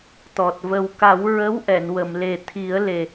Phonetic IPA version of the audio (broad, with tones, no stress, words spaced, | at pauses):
t̪ɔ˨˩t̚və˨˩wka˨˩˦w ɹə˧˥wʔɛ˨˩˨n wə˨˩˨mle˨˩t̪ʰi˨˩˦ə̯le˨˩